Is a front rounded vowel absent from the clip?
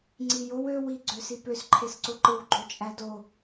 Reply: no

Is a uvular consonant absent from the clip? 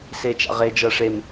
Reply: no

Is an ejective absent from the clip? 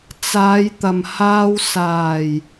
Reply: yes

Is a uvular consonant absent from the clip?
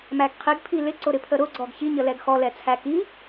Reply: no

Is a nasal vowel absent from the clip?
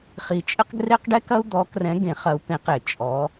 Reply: no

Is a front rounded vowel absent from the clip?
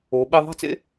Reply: yes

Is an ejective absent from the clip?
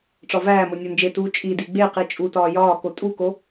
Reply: no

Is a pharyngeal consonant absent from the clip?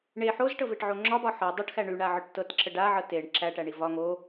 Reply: no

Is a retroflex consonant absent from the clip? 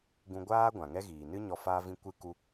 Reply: yes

